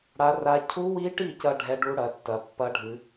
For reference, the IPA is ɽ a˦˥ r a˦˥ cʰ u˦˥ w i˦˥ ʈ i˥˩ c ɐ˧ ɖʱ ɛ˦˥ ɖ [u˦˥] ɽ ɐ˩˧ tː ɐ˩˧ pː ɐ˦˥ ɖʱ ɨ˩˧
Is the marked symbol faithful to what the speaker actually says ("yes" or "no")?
yes